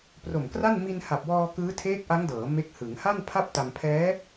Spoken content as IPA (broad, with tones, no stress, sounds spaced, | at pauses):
p r o˨˩ m k r a˥˩ n m i˧ n h a˨˩ p̚ w ɔː˧ k ɯː˦˥ tʰ eː˦˥ k̚ ʔ a˦˥ ŋ d ɤː˩˦ m e˦˥ k̚ h ɯ˩˦ ŋ h a˥˩ n pʰ a˥˩ p̚ t a˧ m pʰ ɛː˦˥